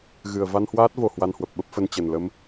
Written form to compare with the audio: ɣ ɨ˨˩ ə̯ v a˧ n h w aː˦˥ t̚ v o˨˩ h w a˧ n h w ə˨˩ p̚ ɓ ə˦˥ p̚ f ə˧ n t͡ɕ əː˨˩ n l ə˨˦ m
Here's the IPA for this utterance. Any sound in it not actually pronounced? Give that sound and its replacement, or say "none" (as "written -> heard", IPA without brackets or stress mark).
əː˨˩ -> ə˨˩